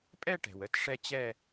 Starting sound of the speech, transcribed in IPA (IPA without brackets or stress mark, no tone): pʼ